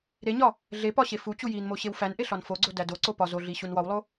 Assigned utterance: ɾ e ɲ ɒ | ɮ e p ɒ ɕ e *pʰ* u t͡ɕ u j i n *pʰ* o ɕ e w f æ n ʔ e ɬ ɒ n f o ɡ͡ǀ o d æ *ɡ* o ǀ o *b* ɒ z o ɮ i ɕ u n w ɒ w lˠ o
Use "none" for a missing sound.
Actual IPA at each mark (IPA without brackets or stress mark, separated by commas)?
f, m, d, p